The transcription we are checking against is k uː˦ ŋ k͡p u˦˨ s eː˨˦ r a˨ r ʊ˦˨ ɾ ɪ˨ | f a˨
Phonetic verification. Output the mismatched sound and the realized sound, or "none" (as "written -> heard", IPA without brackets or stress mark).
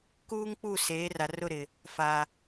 none